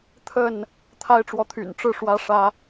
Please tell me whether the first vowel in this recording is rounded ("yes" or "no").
no